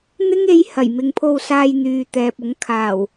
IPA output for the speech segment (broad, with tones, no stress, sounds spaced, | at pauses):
n̪ ɪ˥ ŋ e˧ j h ɐ˨˩ j m ɪ˨ ŋ pʰ o˧ w s aː˧ j n̪ yː˨ t̪ ɛː˨ p̚ ʊ˨˥ ŋ kʰ aː˨˩ w